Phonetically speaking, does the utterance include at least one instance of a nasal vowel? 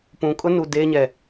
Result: yes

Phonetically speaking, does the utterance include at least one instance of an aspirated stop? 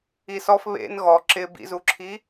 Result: yes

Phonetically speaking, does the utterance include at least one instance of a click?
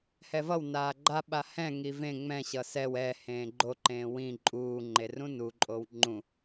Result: yes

